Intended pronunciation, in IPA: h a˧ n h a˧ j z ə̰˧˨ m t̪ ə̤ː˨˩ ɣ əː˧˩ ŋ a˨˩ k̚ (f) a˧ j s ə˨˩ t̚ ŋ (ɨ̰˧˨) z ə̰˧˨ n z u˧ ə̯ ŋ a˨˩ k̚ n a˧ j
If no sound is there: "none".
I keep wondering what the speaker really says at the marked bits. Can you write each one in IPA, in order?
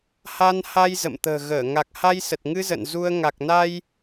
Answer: h, ɨ˧

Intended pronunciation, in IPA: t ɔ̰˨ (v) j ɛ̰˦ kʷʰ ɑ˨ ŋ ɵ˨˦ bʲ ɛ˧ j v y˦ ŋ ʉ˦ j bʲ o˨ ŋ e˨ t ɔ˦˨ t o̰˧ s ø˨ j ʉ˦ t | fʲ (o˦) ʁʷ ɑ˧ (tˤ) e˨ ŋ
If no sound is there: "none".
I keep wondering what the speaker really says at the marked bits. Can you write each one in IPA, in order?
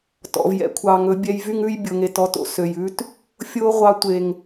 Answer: v, o˦, tʷ

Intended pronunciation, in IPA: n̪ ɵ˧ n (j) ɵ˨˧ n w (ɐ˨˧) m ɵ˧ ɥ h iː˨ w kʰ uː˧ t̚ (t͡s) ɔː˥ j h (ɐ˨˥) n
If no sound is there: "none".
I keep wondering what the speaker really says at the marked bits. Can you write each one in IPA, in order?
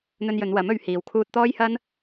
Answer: j, ɐ˨˥, t̪, ɐ˥

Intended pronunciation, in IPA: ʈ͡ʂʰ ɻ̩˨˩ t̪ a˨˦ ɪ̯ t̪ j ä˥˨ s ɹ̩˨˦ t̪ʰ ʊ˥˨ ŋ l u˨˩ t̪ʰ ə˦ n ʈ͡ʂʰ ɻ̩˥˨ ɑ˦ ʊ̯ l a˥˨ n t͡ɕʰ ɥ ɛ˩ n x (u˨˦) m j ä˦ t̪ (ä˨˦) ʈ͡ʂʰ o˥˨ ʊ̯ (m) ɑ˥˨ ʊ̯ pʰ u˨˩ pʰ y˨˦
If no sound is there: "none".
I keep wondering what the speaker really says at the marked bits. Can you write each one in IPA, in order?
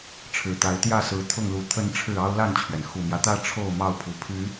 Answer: u˨˩, ä˦, m

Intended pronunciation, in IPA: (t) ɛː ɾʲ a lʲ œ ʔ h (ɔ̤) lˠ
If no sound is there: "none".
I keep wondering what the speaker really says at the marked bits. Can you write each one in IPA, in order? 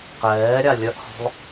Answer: q, ɔ̤

